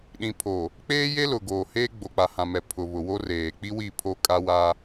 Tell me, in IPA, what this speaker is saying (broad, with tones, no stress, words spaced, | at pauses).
ɗĩ˨pʰo˨ | k͡peː˦je˦lʊ˨ ɡoː˨heː˦ ɡ͡bo˨k͡pa˨hã˨ mɛ˨ pʰʊ˨βʊ˨wo˦reː˨ k͡pi˦wi˦˨ pʰo˦kʼa˦wa˦